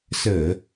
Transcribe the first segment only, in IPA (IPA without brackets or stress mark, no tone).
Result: s